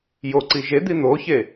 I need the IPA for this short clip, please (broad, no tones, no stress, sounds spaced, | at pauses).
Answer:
j o ǀ i ʒ e d̪ i n̪ o ç e